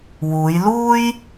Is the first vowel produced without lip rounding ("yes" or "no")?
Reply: no